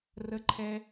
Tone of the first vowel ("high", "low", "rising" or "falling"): low